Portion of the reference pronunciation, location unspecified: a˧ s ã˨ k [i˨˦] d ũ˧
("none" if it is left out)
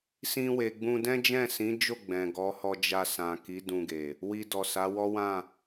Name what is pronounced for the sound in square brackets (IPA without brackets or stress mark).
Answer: i˨˦